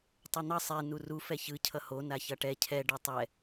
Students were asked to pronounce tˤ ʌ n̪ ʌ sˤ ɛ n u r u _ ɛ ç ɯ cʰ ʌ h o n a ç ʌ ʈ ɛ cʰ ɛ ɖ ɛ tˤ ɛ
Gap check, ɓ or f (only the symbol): f